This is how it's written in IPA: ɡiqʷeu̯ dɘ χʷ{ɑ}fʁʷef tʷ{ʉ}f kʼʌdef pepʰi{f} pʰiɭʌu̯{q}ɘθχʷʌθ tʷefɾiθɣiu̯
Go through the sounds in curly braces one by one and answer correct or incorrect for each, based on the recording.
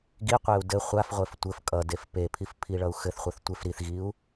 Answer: incorrect, incorrect, correct, incorrect

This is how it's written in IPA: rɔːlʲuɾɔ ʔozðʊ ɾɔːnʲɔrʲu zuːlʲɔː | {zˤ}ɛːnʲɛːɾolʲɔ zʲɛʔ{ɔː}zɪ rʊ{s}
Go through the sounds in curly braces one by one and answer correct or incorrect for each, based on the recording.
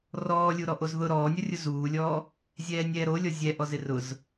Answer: incorrect, incorrect, incorrect

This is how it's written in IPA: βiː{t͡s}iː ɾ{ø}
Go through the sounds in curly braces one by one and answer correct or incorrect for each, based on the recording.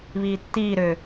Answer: incorrect, correct

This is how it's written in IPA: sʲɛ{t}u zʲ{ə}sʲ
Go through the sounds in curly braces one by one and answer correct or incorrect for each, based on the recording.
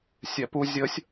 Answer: incorrect, correct

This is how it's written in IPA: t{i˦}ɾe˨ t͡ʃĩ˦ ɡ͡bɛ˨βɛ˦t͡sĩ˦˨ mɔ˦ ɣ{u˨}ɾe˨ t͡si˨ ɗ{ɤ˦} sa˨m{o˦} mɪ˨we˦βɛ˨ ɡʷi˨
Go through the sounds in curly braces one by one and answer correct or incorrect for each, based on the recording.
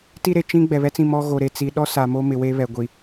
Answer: correct, incorrect, incorrect, correct

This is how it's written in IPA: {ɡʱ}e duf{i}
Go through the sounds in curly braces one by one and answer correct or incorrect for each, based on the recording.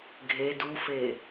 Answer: correct, incorrect

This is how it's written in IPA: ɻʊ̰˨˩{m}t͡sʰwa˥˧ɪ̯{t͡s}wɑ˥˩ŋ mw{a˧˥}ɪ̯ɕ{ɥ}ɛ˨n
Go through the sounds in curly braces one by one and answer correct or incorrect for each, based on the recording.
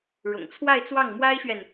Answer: incorrect, correct, incorrect, correct

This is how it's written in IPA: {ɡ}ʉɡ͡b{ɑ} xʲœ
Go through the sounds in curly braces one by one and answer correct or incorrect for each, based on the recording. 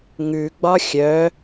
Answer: incorrect, incorrect

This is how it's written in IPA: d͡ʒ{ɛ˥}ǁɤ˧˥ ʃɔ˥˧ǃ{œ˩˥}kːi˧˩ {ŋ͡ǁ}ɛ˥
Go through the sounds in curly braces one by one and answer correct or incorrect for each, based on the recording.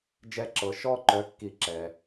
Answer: correct, incorrect, incorrect

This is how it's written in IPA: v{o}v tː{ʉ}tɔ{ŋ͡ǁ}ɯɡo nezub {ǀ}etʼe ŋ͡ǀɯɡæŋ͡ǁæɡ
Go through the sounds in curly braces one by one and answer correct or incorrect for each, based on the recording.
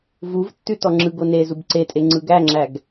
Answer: incorrect, correct, correct, correct

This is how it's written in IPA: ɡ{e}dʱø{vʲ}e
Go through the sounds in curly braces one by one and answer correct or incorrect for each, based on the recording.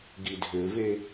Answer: incorrect, incorrect

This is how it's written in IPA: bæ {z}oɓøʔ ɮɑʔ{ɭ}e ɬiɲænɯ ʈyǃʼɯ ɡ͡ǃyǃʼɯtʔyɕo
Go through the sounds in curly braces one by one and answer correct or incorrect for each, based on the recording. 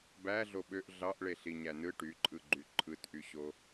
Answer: incorrect, correct

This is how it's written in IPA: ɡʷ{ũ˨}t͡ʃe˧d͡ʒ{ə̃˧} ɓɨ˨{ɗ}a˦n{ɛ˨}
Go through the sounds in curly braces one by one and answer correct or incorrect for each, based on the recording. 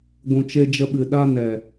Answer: correct, incorrect, correct, correct

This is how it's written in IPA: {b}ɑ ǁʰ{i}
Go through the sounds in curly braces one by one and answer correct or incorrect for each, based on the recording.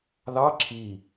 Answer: incorrect, correct

